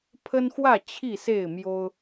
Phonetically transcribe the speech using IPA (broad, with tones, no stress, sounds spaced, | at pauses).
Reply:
pʰ ə˦ n x w ä˥˨ t͡ɕʰ i˥˨ s e˥˨ ɪ̯ m j o˦ ʊ̯